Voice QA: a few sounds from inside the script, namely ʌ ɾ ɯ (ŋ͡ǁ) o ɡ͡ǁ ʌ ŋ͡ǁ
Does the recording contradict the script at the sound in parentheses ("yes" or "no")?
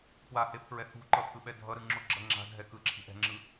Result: no